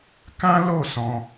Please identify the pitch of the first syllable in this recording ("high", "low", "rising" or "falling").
high